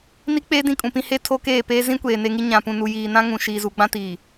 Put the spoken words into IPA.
n i˦ k͡p eː˦ d ĩ˦ kʼ ũ˨ p ĩ˦ h e˦ tʰ o˦ k eː˦˨ p eː˦ z ĩ˦ kʷ eː˨ n e˦ ŋ i˦ ɲ ã˨ p ũ˨ n u˨ j iː˨ n ã˦ ŋ ũ˨ ʃ iː˨ z u˨ ɡ͡b ã˦ t iː˨

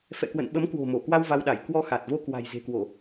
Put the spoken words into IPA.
f ɛ̰˧˨ k w ə̰˧˨ n ɓ ə˨˦ m k w o̤˨˩ m o˧˩ k w a˧ w v a˧ w ɗ a˧˩ j k w ɔ˧ x a˨˩ t̚ v o˧ k w a̤˨˩ j z e̤˨˩ k w o˧˩˨

